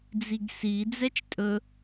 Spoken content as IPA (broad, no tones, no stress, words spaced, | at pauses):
d͡ziɡsi d͡zɛt͡ʃtʼɵ